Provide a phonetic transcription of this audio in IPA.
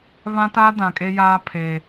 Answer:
βã˦ta˦dã˨ kʼe˦jaː˦pʰe˨

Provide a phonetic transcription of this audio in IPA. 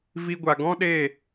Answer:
vi˧ɡʷa˨ ɡɔ̃˦ɗe˦˨

